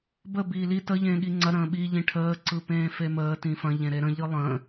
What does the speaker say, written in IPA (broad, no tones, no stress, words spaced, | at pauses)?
bə biːli tə ʎẽːɠiŋ͡ǀɐ ɾə̃ːɓi ʎĩʈʰəː ǀɯpẽːfeməː tĩfɐ̃ ʎẽɾeɾə̃ ʎɯlˠə̃ː